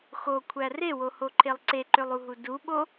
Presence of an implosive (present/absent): present